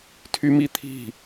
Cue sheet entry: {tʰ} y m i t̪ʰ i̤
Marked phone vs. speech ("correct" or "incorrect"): correct